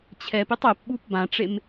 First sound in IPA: t͡ɕʰ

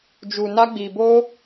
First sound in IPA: d͡ʒ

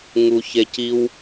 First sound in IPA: ŋ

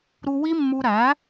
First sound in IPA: ɾ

